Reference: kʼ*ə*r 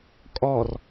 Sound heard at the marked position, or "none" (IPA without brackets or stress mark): ɔ